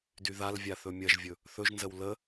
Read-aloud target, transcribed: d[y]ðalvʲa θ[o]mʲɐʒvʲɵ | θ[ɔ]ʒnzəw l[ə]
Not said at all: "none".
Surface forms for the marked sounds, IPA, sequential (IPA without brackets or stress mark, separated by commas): y, ɵ, ɵ, ə